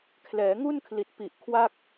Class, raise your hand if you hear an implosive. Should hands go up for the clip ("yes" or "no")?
no